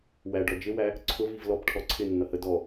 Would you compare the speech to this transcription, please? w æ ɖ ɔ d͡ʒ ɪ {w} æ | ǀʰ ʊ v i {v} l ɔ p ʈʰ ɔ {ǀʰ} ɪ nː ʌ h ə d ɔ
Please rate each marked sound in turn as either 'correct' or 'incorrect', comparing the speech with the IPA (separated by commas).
correct, correct, correct